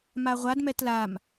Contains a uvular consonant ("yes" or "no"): yes